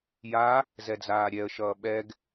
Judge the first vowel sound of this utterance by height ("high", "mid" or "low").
low